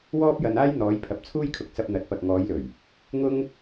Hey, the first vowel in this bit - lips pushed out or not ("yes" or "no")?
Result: yes